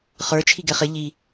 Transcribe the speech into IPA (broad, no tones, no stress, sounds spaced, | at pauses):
χ ə˞ t͡ʃʰ i ɡ ɛ χ ɪ ʎ i